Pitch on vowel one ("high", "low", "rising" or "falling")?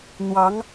rising